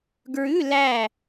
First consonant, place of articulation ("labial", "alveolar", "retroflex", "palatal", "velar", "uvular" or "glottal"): velar